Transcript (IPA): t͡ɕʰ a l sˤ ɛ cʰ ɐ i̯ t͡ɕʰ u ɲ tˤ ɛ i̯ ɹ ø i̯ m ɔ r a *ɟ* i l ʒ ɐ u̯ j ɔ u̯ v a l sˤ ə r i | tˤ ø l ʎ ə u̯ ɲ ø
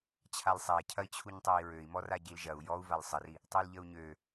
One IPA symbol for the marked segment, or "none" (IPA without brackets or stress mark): ɟ